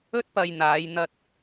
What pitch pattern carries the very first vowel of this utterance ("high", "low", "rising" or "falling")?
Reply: high